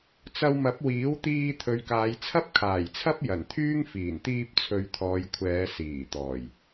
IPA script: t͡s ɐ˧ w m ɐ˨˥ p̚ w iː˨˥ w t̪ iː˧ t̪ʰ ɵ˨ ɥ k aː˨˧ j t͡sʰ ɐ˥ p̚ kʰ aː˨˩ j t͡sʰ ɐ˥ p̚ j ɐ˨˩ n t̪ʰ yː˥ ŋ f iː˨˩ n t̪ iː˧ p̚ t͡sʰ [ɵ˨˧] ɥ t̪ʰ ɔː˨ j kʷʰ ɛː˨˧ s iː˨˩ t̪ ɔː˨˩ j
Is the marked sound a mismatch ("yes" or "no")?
no